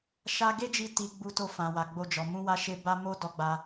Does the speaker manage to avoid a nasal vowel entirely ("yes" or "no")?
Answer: no